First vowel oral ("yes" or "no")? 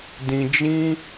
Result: no